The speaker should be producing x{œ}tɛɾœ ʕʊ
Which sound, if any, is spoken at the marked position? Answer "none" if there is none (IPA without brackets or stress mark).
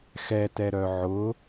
ɛ